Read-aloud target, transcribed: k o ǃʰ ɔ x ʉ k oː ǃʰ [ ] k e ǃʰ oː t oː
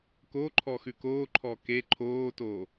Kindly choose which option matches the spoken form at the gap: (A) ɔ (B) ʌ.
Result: A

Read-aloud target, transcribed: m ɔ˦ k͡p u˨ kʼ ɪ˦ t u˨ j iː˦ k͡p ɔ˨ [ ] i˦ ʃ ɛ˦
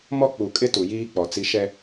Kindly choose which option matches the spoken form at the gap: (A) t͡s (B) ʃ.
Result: A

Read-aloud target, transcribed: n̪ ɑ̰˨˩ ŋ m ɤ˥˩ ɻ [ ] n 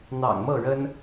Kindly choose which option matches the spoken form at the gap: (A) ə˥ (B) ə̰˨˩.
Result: A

